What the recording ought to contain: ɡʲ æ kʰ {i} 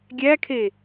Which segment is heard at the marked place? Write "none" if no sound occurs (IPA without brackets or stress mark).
e